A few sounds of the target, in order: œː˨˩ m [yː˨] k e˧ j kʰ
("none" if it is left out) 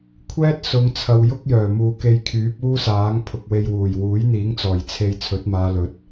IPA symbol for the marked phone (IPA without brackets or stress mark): uː˨